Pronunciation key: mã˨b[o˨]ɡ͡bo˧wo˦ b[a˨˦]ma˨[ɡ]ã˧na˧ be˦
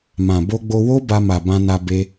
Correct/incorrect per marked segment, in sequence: incorrect: o˧, incorrect: a˧, incorrect: b

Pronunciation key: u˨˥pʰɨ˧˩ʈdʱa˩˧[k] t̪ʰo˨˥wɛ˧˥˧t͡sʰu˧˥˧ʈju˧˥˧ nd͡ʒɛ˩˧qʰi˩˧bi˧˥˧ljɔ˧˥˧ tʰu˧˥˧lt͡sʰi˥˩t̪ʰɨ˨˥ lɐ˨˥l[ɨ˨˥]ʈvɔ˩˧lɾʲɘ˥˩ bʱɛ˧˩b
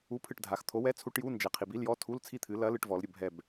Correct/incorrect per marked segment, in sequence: incorrect: x, incorrect: ɨ˩˧

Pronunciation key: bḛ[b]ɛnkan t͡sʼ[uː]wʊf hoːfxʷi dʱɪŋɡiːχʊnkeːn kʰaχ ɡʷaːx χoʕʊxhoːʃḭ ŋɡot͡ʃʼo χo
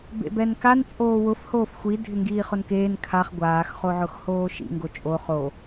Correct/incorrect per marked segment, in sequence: correct, incorrect: oː

